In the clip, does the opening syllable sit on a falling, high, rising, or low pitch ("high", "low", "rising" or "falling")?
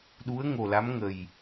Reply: rising